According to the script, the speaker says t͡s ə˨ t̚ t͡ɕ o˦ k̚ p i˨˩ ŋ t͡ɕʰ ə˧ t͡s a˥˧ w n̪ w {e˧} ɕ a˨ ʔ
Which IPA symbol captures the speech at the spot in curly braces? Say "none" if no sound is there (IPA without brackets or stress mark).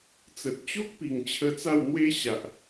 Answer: e˦